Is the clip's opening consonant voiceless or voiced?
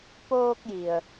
voiceless